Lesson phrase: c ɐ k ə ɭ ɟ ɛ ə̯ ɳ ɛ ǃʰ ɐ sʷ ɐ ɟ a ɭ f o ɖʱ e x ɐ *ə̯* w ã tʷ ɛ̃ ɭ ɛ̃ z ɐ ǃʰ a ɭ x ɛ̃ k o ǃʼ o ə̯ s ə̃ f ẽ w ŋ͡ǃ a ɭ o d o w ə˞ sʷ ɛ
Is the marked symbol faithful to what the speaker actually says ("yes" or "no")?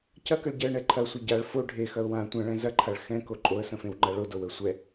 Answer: no